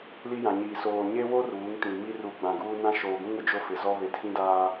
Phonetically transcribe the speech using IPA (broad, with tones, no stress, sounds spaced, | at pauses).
l i˦ j ã˨ ɲ iː˨ s oː˨ ɲ e˦ w o˦ r uː˨˦ ŋ t ĩ˨ m i˦ r u˨ ɡ͡b ã˨ ɡ uː˦ n ã˦ ʃ oː˨ ɡ ũ˦ ŋ ʊ˨ d͡ʒ o˦ f ɪ˨ z ɔ˦ β e˨ tʰ ĩ˦ d aː˦